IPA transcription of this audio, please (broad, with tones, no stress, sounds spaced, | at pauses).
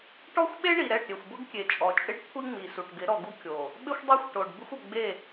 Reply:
ʈ ɔ˦ xʷ ɓ e˦ ɳ i˨ ɾ ɛ˦˨ ʈ ɾʲ e˨ xʷ b ʊ˦ ɡ kʲ e˨ t͡ʃʼ ɔ˨ t͡ʃʼ ɪ˦ ɖ kʷʰ i˦ ŋ͡m i˨ s u˨ ʈ ɡ ɪ˨˦ ɾ ɔ˨ ɡ u˦ kʲ o˨ | ɓ ɪ˦ xʷ dˤ ɛ˦ xʷ ʈ o˨ ɖ b ɪ˦ xʷ ʊ˨ ɡ͡b e˦˨